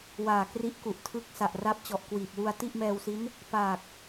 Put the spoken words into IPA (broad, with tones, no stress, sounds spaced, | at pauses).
w aː˨˩ k r i˦˥ ʔ k u˨˩ ʔ tʰ ɯ˦˥ k̚ s a˨˩ ʔ r a˦˥ p̚ t͡ɕ ɔ˨˩ ʔ k w iː˨˩ p̚ w u˧ a̯ t i˥˩ ʔ m ɛː˧ w s i˦˥ n | p aː˨˩ k̚